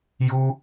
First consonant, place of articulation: palatal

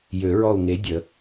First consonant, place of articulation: palatal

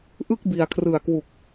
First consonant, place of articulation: glottal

